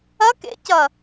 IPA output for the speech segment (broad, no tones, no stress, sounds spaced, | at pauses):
ɐ k ḛ c ɐ